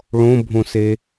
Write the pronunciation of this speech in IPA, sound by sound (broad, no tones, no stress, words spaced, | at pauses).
ɭõbʱõse